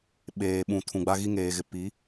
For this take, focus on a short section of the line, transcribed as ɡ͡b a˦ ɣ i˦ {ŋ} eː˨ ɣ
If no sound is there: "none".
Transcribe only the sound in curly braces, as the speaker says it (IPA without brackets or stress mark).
ŋ